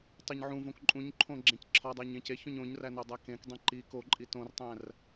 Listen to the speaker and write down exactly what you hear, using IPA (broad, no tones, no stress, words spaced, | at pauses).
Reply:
tˤeɲʕũvõk ǃʼũɲǃʰõ ɡ͡ǁẽcǁʰɒdˤæɲ ẽceçõɲ õɲræ nodˤækẽkdˤẽ ǃik oǃʼi tõrtˤæ̃r